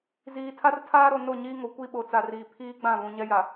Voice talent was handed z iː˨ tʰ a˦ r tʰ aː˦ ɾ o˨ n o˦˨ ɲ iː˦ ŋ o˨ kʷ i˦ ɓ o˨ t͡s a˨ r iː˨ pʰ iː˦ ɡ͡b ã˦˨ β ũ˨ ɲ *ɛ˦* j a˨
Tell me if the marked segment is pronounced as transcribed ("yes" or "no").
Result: yes